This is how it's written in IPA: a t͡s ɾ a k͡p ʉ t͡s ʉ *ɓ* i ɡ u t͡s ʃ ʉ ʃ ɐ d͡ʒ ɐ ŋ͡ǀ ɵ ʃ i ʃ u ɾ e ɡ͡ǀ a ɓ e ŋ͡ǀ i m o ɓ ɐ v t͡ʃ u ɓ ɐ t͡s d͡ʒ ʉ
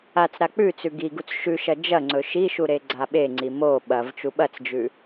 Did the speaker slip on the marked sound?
yes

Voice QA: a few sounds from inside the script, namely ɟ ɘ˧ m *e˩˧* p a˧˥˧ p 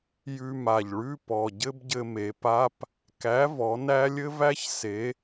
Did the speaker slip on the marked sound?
no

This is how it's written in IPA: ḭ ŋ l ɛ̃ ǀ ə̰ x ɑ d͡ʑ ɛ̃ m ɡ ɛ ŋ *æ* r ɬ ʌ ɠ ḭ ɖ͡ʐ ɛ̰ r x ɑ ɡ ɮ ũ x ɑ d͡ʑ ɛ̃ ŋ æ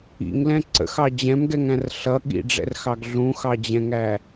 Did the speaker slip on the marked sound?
yes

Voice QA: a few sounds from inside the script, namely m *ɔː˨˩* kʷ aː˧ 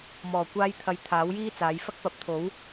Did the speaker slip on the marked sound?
no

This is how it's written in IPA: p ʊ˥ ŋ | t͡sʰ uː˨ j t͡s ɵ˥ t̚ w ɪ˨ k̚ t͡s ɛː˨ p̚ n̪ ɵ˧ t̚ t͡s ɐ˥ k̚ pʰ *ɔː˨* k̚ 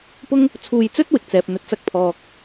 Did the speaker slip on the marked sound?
no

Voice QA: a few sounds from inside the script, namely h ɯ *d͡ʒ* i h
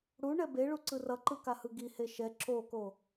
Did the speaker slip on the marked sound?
yes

